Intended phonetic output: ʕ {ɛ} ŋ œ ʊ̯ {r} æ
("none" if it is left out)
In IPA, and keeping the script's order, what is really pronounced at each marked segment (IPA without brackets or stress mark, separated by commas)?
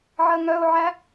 ɜ, ʕ